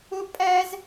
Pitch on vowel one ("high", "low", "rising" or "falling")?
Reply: high